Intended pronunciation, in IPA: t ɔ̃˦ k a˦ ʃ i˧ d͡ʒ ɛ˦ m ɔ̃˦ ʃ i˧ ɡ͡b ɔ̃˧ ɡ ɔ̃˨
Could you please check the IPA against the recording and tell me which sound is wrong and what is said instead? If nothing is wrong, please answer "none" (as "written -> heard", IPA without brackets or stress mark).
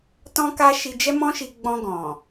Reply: none